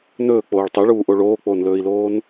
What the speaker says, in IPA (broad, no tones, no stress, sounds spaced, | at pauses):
n ɵː k͡p oː ɭ tˤ ɵ ɭ uː ʔ o ɭ oː k͡p oː n l ɵː i̯ l oː n